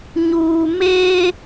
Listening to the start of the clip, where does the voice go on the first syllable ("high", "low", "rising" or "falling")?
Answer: low